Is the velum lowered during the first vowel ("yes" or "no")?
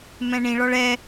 yes